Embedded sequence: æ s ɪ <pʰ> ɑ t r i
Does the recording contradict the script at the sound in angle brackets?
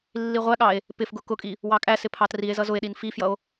no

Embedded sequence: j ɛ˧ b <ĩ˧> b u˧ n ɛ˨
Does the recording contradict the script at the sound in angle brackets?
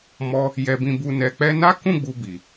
no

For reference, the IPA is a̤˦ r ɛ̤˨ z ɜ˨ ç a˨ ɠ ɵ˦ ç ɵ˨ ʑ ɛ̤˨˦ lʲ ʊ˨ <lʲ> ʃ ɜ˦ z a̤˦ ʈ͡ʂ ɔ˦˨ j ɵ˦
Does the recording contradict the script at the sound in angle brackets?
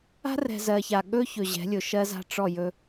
yes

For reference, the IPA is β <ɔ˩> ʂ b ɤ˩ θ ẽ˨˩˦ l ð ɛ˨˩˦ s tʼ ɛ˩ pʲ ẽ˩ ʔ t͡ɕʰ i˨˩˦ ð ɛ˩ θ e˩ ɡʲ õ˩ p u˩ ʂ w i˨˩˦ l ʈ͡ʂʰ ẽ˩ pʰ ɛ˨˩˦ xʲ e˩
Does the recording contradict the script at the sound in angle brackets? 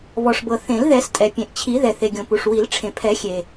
no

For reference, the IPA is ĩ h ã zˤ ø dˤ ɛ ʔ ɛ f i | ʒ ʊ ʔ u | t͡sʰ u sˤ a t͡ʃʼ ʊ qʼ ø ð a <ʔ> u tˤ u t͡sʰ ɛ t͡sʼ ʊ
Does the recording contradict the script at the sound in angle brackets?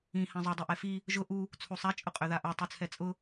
no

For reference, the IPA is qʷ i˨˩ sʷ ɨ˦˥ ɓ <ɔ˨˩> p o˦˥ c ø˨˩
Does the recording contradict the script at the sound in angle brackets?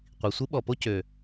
no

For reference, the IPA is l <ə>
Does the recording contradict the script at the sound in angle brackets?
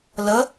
no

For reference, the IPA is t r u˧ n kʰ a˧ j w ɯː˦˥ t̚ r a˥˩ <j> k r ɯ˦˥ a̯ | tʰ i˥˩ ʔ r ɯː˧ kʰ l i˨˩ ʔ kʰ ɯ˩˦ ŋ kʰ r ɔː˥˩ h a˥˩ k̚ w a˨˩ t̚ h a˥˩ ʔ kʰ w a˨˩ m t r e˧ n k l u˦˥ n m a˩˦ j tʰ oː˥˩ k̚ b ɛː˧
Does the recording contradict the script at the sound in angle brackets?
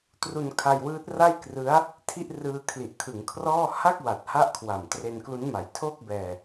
no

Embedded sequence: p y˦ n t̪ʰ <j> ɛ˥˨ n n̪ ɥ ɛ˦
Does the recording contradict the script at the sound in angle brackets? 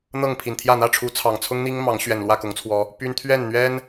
yes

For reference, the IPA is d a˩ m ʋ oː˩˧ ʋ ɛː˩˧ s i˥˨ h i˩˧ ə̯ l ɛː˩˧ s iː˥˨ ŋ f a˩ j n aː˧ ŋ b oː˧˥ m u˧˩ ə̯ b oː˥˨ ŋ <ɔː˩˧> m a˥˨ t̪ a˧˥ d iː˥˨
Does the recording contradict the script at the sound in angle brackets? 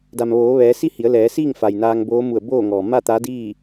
yes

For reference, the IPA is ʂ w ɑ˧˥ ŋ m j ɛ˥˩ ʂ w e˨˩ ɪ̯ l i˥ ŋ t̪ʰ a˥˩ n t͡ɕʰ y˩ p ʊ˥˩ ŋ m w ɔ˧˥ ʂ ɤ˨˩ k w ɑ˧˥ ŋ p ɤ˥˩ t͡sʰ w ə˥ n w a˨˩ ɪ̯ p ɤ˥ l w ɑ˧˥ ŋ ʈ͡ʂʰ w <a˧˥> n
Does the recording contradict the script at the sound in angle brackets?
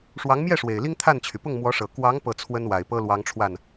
yes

